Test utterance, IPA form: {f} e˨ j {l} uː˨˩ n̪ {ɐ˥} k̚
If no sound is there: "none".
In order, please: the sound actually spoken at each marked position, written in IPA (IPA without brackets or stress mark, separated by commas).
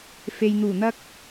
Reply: f, n̪, ɐ˥